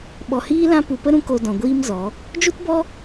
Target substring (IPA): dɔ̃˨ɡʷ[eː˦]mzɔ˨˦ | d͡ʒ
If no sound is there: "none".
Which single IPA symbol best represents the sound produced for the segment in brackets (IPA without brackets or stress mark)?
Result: iː˦